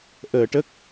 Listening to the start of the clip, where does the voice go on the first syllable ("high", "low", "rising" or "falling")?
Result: low